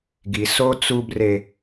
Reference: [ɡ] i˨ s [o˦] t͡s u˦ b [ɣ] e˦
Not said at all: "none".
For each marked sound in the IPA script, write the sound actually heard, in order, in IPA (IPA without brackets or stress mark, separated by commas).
ɡ, o˦, r